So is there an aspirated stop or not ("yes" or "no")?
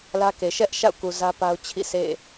yes